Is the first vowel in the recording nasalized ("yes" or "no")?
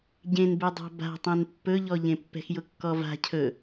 yes